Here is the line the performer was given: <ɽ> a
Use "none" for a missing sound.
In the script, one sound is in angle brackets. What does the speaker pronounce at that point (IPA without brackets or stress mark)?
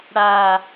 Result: ɽ